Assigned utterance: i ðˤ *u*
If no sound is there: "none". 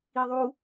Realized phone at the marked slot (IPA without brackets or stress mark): u